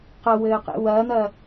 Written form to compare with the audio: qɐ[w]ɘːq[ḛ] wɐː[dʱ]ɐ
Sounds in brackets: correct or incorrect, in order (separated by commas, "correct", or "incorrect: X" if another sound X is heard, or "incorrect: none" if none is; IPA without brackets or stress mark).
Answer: correct, correct, incorrect: n̪